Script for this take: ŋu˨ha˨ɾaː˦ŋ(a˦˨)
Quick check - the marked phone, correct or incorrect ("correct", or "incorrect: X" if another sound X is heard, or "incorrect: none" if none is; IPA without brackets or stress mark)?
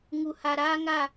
correct